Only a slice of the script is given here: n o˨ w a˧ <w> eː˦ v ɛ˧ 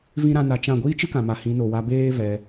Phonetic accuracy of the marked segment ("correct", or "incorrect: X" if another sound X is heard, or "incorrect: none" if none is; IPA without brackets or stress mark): incorrect: b